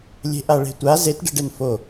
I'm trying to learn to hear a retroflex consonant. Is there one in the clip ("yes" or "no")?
yes